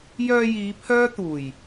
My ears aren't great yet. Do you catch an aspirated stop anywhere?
yes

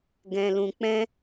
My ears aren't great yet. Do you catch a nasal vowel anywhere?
yes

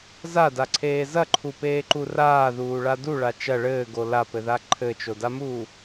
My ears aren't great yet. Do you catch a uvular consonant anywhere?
no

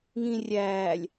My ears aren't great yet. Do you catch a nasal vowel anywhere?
yes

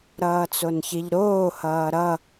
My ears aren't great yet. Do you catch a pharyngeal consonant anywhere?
no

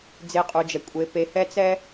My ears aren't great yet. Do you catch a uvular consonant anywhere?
yes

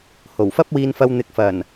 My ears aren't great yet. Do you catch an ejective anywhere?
no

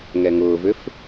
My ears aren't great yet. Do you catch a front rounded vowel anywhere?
yes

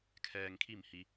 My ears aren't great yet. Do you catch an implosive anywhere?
no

